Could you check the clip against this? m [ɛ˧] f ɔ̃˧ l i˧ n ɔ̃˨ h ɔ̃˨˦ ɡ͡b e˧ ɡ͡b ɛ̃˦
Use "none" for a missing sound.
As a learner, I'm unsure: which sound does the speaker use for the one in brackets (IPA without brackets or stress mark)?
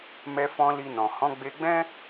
ɛ˧